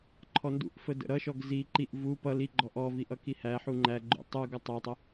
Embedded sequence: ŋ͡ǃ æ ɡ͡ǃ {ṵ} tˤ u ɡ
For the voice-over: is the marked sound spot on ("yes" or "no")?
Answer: yes